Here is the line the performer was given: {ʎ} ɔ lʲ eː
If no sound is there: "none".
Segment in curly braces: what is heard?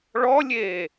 ɭ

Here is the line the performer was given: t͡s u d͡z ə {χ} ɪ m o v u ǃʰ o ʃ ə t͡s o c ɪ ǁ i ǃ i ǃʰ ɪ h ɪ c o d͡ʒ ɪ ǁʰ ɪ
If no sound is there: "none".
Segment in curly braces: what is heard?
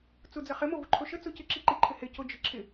χ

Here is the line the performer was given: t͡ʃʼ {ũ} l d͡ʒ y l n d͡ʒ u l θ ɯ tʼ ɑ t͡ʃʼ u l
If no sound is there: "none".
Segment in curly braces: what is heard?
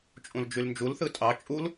ũ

